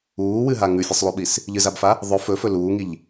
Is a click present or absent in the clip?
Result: absent